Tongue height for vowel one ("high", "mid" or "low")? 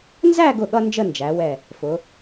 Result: low